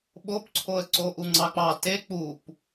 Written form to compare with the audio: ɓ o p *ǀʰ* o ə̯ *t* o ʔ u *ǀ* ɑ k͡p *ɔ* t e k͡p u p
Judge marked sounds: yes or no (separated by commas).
yes, no, no, no